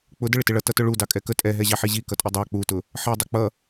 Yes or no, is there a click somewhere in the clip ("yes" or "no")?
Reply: no